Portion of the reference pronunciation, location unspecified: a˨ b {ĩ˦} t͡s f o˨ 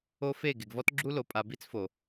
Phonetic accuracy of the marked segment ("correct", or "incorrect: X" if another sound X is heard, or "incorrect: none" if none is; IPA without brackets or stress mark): incorrect: i˦